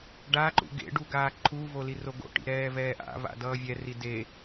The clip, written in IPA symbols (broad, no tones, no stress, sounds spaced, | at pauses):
ɖ a ǃ ṵ ɡ ḛ ɖ u ɡ aː ǃʰ u v o l i r o ɡ o̰ ʈ ḭ ɾ ɛː v ɛː ʔ a̰ v a̰ d ʌː vʲ ɛ r i d e